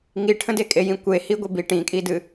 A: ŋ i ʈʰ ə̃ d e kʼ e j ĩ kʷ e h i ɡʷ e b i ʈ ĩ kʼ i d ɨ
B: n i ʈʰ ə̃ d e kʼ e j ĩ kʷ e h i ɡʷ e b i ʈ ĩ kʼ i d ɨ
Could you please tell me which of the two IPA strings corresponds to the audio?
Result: A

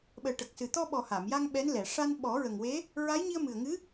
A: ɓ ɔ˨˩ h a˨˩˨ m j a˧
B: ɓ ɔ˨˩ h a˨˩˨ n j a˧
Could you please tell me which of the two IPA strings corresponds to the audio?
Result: A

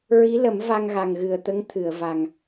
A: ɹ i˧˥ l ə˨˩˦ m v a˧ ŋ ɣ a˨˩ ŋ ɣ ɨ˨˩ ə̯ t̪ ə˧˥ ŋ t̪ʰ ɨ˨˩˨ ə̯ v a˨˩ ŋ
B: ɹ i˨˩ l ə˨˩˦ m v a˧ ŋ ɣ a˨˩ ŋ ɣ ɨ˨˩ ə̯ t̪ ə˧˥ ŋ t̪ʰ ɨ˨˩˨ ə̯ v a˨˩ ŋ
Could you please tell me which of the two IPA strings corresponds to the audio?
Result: A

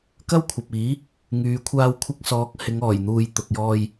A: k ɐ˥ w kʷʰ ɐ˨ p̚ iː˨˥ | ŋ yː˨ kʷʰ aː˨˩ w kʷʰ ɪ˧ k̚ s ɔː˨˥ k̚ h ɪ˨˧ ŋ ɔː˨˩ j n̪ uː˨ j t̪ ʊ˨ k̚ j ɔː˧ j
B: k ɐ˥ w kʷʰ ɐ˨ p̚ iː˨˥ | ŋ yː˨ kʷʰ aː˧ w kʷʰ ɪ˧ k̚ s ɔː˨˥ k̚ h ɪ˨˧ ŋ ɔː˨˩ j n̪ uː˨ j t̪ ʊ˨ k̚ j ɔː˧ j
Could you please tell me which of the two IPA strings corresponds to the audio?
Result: B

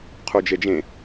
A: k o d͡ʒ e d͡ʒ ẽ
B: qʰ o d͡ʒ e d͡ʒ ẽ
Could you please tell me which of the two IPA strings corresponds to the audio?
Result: B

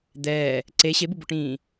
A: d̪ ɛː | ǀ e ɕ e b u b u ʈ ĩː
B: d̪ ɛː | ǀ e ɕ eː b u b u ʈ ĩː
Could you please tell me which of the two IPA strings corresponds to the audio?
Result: A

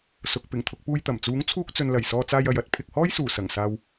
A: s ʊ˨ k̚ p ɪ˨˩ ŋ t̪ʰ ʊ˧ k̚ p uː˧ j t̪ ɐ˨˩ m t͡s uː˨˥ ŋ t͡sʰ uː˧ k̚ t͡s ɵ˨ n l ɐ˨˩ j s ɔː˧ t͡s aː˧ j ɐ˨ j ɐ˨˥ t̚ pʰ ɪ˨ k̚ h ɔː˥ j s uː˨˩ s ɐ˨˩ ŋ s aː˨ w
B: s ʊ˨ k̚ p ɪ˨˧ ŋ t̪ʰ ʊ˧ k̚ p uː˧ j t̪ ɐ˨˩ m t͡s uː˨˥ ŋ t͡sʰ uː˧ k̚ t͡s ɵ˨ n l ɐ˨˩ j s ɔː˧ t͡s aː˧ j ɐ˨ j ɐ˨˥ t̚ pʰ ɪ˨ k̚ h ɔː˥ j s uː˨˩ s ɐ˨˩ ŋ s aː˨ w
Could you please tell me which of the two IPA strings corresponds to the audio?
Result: A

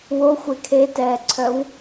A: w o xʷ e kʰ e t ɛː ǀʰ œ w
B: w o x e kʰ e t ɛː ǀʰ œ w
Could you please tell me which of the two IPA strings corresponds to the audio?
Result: A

